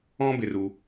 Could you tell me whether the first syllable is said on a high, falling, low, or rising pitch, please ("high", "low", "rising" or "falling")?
high